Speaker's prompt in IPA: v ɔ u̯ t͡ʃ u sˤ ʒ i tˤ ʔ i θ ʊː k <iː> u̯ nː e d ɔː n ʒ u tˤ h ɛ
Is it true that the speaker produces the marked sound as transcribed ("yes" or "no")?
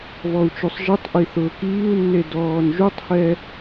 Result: yes